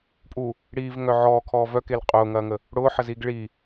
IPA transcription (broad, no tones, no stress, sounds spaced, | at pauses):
pʼ u | ɽ iː v ŋ œ ʕ ɔː kʰ ɔː v œ k e l qʼ ʊː ŋ ɐː ŋ ə | ɽ ʊː ħ ə z iː ɡ ɭ i